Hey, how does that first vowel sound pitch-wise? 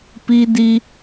high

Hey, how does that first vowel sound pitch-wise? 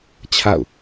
falling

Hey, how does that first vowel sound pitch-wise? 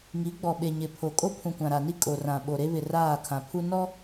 rising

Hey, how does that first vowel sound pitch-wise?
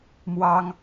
high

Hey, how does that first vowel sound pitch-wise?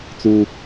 high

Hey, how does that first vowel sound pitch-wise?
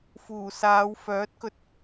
low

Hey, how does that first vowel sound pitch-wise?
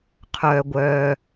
low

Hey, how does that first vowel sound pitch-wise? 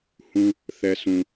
high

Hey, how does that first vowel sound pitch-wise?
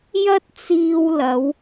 high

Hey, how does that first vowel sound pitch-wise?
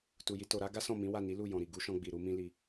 low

